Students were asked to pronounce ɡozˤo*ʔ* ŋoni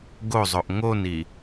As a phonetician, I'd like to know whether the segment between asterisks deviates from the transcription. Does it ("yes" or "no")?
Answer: no